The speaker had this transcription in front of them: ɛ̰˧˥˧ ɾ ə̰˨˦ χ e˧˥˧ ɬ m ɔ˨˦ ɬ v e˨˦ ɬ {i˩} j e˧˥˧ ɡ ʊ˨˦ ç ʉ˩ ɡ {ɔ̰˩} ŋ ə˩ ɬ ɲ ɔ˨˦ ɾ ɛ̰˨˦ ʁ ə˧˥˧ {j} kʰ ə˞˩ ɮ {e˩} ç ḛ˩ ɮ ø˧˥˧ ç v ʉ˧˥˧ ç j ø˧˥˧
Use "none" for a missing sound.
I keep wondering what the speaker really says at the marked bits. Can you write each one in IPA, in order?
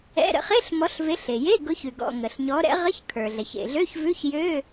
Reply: e˩, ɔ̰˩, ç, ɛ˩

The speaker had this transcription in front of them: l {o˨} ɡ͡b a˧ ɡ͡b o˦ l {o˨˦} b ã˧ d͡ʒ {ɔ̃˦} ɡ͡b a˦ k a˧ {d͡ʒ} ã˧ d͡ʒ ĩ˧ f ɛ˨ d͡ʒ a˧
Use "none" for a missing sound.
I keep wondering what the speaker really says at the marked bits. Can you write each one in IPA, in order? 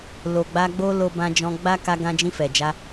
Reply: o˨, o˧, ɔ̃˧, ɡ

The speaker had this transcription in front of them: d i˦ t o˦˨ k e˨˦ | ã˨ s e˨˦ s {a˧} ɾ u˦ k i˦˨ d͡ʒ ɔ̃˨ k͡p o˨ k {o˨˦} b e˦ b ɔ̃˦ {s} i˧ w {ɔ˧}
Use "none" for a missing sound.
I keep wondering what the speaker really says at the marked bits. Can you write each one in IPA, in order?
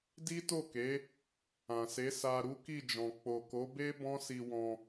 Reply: a˧, o˨˦, s, ɔ̃˧

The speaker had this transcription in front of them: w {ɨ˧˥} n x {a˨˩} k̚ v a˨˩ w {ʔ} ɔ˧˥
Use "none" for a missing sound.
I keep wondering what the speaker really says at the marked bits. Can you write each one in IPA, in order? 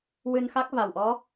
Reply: ɨ˧, a˦˥, ʔ

